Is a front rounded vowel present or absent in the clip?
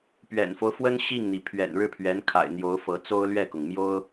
absent